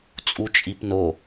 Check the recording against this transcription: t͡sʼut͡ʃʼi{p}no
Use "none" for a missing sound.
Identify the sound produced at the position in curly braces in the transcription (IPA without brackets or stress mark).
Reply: p